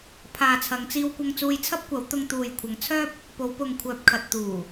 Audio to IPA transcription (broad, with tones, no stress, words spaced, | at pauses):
pʰaː˨t͡sʰɐ˨˧ŋt͡siː˧w kʷɐ˧ŋt͡suː˧jt͡sʰɐ˥p̚kʷɐ˨˥w t̪ʊ˧ŋt̪uː˨jkʷʰɐ˨˧ŋt͡sʰœː˥p̚ | po˨˧wpʊ˨ŋkʷʰœː˨p̚kʰɐ˨t̚ t̪uː˨˩